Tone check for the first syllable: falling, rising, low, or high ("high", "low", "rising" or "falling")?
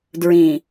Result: low